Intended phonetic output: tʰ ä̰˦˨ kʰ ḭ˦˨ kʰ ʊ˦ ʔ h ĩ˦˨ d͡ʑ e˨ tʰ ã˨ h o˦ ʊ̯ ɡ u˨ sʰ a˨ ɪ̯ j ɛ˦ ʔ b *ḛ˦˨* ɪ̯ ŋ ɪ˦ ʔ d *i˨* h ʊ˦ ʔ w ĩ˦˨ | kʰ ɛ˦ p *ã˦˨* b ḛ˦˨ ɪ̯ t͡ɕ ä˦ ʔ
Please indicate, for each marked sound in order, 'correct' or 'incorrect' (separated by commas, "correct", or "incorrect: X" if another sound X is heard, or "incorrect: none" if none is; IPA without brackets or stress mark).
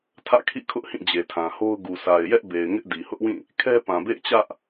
incorrect: e˨, correct, incorrect: ã˨